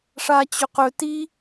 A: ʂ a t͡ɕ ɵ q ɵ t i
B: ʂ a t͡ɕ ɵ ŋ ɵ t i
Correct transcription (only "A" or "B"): A